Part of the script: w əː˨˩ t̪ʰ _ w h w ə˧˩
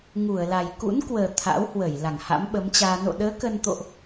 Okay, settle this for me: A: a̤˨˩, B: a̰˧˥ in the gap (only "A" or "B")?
B